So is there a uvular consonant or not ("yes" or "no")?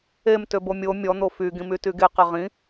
yes